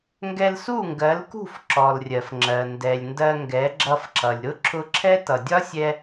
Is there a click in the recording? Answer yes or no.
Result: yes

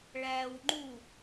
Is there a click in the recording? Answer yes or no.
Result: yes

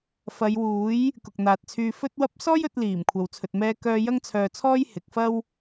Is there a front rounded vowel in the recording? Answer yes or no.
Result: yes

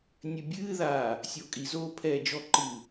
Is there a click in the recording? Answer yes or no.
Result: yes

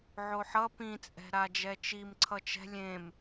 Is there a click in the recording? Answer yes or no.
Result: yes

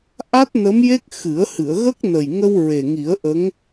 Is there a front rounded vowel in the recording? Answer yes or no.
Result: no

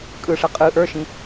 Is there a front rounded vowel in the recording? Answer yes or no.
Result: no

